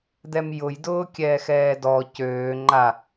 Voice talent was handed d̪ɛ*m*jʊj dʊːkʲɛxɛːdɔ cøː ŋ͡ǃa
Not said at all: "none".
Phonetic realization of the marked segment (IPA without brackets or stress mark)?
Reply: m